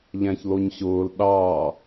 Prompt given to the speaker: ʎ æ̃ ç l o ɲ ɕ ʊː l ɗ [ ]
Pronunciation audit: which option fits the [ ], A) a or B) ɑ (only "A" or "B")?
B